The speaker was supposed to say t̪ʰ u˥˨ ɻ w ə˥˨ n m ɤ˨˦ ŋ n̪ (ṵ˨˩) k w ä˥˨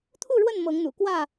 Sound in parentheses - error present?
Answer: no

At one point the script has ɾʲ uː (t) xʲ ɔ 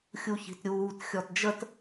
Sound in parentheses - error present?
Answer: no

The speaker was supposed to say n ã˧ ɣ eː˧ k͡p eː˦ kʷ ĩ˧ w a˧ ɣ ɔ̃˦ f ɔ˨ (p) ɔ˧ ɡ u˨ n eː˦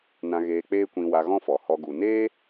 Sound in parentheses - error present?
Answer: yes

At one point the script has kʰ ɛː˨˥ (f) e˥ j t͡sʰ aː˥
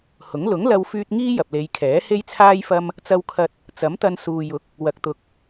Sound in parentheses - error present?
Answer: yes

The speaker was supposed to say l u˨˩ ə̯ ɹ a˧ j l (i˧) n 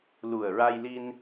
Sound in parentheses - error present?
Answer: no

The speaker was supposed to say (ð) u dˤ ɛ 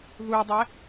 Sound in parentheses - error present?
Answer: no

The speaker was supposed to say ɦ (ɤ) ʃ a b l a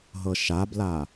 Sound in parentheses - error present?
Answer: no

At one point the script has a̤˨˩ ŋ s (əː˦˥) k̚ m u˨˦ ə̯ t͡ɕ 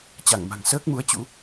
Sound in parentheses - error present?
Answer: no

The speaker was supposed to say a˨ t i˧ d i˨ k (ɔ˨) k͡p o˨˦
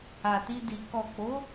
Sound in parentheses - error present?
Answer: no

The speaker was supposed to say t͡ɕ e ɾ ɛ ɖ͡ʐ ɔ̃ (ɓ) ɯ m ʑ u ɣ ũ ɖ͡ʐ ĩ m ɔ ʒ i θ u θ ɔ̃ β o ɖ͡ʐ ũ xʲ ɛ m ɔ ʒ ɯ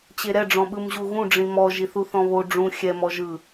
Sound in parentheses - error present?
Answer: no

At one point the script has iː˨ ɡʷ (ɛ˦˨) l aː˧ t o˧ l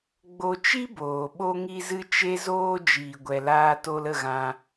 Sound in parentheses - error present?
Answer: yes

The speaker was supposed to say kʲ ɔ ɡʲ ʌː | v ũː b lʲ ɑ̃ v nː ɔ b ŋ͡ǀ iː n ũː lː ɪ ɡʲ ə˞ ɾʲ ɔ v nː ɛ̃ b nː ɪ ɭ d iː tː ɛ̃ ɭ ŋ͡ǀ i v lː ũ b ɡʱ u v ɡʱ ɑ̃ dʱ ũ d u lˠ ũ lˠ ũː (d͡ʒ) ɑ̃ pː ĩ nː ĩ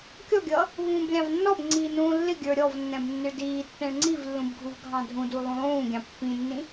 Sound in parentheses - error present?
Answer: yes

